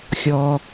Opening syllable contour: low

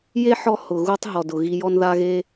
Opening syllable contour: high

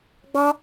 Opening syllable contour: high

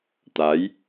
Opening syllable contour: rising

